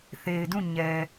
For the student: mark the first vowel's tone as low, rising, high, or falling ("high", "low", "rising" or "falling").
low